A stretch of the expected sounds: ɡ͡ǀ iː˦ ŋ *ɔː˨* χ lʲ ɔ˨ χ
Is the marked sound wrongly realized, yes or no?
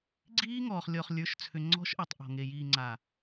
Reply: no